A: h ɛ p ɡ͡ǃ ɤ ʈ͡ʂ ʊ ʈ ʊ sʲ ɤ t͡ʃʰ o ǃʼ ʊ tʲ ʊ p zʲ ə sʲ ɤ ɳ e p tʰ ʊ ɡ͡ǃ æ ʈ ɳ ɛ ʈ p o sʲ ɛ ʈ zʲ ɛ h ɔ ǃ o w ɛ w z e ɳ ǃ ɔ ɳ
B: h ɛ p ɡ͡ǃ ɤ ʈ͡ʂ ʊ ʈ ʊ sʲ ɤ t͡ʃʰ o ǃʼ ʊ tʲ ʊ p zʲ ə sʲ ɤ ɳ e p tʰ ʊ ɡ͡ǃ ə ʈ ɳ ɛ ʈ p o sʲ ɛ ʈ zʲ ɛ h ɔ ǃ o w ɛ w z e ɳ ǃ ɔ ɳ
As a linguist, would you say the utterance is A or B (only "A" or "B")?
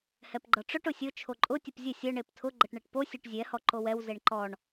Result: B